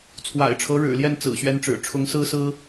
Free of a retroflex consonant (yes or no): no